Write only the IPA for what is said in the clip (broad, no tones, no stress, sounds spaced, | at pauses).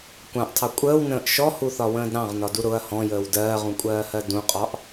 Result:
kʷ ɑ̃ ʔ tʰ ɑ kʷʼ əː w n ə̃ː ʔ ʃ ɔ h u θ ɒ w ə̃ː d ɾ ɑ̃ ʁ n ɒ d u ɾ ʊ ɐ̯ h ɔ̃ j əː w d ɜː ʁ ũ kʷʼ ɜː h ɜ d ũ qʼ ɒ ʔ